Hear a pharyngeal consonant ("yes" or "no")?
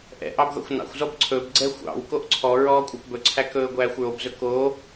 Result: no